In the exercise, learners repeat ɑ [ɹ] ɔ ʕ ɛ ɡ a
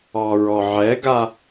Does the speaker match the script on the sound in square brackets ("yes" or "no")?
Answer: yes